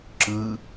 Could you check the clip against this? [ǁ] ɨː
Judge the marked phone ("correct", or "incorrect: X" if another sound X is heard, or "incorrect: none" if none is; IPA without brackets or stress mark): correct